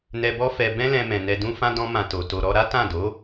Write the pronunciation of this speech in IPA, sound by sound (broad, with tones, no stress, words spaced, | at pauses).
nɛ˨bɔ˧ fɛ˧ bɛ̃˦lɛ̃˧mɛ̃˨ nɛ˨dũ˧fã˧ dɔ̃˦ mã˧to˨ to˨ɾɔ˧ɾa˦ tã˦˨do˨˦